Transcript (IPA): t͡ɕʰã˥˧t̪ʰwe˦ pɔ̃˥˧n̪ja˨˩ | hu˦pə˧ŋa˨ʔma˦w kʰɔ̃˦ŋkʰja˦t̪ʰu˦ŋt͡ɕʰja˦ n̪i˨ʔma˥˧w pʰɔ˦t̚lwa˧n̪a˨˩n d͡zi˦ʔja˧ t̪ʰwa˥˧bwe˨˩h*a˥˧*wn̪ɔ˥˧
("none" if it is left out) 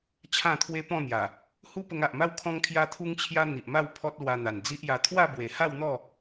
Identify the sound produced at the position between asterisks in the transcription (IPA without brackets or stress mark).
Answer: a˥˧